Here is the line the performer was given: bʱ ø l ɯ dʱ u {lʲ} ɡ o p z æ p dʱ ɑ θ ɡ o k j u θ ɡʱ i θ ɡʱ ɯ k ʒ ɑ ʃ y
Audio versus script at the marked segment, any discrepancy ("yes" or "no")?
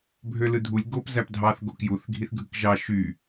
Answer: no